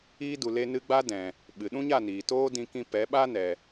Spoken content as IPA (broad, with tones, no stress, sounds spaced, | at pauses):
iː˧ d u˨ l e˧ n ɨ˧ ɡ͡b a˦ d ɛ̃˨ | ɓ ɨ˨ ɗ ũ˦ ɲ a˦˨ n iː˨ t oː˦ d ĩ˧ k ĩ˧ p ɛ˨˦ ɓ a˦ n ɛ˨